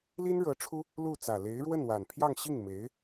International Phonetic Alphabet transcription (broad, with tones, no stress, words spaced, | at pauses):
li˥nɻɤ˧˥ ʈ͡ʂʰu˥ | lu˥˩ t͡sä˨˩le˧˥ɪ̯ɻwə˥˩n wa˨˩n pʰjɑ˥˧ŋɕi˥˩ŋme˧˥ɪ̯